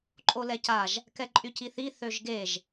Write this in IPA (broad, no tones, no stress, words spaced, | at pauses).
ǃʼolɛcaʒ | kɛǃʼyciθi θøʒɡeʒ